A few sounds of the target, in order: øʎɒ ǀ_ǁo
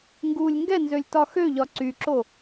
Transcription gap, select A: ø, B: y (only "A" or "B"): B